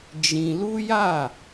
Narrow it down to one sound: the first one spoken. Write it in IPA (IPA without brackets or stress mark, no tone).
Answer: d͡ʒ